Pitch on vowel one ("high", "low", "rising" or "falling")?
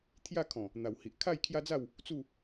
falling